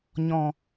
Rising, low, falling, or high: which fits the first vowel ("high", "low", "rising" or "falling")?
low